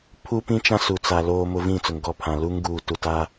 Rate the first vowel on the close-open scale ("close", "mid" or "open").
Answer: close